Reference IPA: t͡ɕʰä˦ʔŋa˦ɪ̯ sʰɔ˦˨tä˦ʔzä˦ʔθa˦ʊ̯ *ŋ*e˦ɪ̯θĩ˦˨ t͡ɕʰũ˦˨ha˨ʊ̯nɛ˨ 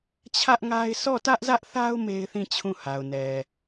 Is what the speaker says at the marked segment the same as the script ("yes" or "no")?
no